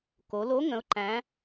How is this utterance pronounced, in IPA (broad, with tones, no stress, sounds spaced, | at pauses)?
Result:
k o˩˧ l o˧˥ ŋ ə̃˧˥ ʊ̯ ǃ æ̃˧˥